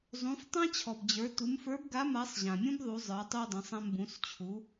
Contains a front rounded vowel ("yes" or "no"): no